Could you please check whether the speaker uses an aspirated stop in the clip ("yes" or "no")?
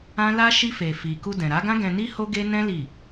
no